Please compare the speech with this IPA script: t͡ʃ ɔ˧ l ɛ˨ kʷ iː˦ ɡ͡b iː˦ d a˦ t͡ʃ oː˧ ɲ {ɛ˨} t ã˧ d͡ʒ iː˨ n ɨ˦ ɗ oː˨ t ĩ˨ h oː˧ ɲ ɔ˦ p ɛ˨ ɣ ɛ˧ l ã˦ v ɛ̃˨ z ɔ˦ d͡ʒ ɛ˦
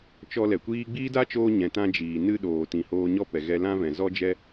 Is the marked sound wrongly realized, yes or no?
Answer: yes